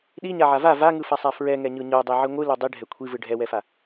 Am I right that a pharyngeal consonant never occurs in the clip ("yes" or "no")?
no